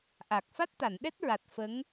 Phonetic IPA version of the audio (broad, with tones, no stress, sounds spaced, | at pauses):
ʔ a˨˩ k̚ f a˦˥ t̚ t̪ a˨˩˨ n ɗ ɛ˦˥ t̚ ɹ a˨˩ t̚ f ə˧˥ ŋ